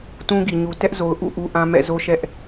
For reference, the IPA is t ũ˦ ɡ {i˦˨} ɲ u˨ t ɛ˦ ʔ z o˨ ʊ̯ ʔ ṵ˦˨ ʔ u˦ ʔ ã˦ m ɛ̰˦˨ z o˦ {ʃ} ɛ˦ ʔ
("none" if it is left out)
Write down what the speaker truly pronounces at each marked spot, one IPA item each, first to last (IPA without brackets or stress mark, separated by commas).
i˨, ʃ